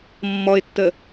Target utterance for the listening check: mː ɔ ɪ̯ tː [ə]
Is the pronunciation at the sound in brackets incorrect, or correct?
correct